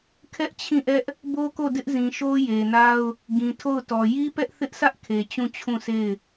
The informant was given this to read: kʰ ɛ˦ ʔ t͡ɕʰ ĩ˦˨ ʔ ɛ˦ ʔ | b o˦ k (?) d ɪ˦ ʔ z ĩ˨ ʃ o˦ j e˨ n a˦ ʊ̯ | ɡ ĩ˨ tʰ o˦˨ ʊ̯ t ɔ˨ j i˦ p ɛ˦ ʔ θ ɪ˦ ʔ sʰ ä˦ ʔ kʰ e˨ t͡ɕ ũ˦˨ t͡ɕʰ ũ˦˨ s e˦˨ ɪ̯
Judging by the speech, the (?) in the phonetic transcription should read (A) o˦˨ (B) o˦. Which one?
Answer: A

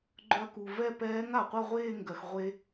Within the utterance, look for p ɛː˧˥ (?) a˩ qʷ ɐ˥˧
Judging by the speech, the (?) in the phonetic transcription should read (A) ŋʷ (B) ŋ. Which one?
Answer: B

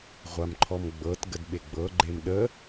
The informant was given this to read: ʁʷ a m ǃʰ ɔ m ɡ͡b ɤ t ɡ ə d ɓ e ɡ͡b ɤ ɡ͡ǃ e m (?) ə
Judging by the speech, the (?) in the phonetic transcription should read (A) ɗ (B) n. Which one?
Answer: A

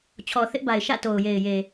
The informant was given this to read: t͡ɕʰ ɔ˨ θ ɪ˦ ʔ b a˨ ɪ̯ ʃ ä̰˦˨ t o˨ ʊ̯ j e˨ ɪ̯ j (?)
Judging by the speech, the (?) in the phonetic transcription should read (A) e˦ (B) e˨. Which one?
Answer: B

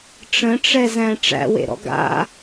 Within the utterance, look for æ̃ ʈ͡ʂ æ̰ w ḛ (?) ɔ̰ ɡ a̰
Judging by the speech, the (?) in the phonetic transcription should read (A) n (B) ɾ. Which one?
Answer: B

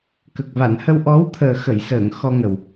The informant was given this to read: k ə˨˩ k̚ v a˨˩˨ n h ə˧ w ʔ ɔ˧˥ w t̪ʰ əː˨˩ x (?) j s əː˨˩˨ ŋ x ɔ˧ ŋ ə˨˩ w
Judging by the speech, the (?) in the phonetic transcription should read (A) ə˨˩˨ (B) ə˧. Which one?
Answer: A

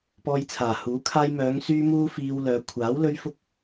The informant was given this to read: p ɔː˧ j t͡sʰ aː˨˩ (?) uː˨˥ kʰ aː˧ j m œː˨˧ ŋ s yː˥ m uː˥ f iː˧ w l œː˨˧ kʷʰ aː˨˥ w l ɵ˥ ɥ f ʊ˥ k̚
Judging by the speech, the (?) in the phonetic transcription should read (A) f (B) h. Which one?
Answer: B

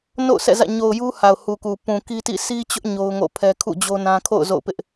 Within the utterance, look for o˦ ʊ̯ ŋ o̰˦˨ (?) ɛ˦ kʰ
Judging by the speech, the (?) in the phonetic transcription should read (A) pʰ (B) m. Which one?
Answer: A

